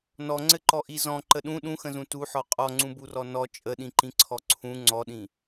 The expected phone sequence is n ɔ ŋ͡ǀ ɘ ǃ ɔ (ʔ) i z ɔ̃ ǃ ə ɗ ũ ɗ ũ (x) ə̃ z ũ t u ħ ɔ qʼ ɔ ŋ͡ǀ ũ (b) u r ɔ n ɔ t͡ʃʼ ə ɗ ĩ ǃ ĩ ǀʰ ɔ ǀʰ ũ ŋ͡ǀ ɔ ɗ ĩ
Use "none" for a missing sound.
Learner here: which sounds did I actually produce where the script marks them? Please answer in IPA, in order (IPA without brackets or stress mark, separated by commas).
ʔ, x, b